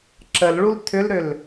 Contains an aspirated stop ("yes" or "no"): yes